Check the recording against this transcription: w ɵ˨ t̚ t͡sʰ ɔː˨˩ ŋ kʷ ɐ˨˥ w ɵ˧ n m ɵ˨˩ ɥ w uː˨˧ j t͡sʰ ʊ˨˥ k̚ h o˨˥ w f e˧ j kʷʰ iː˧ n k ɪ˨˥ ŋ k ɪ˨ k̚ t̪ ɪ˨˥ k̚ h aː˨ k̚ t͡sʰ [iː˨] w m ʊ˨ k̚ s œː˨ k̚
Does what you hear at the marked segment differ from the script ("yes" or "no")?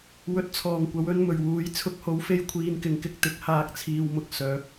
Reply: no